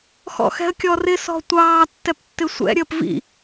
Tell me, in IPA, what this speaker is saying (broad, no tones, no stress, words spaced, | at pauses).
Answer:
xɔ̰xɛ̤ə̯kʲɔrɪ sɔ̤tʷɑː tːɛptːɪsʷɛ̰ ɾʲəːpvḭ